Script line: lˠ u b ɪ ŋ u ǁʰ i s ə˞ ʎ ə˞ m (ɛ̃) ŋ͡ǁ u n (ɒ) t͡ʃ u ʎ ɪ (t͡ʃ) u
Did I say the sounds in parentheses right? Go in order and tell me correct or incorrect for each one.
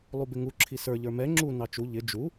incorrect, incorrect, incorrect

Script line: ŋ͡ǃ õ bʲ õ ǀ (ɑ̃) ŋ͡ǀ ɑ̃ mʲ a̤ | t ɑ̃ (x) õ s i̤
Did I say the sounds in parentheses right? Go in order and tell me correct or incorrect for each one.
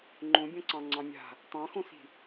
correct, correct

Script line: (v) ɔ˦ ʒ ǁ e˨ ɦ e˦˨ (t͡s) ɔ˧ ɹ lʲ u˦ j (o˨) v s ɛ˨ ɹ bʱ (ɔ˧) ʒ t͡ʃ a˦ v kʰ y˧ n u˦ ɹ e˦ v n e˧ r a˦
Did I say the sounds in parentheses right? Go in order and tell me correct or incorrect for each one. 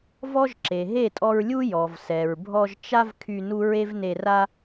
correct, incorrect, incorrect, correct

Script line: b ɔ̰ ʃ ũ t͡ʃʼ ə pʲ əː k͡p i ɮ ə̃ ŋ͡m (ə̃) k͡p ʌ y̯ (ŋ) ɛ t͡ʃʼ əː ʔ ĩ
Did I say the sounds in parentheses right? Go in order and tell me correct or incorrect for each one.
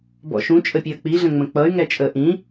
correct, correct

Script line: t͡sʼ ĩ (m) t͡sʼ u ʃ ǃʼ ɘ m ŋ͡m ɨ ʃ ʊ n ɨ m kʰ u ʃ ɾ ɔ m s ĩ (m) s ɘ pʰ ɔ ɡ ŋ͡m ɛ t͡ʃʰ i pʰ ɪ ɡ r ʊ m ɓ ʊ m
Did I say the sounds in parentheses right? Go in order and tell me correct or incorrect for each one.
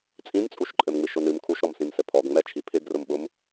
correct, correct

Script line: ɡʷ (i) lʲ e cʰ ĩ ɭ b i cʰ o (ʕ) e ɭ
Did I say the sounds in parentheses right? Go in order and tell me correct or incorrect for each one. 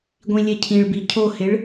incorrect, incorrect

